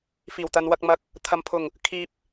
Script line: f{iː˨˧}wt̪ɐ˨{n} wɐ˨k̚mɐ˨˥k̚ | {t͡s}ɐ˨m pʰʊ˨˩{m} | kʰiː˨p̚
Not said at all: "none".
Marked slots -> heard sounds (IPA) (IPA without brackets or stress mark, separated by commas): iː˨˩, n, t̪ʰ, ŋ